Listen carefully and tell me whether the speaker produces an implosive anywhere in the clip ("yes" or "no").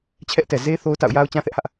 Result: no